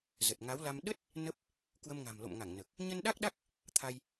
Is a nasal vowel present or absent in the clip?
absent